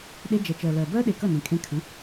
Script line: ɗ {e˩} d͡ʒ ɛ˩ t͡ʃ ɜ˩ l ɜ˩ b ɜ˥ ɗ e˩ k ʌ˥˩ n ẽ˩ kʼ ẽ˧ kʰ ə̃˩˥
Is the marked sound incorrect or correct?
incorrect